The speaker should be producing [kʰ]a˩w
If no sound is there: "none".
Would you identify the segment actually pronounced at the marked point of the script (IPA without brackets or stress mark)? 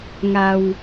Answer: ŋ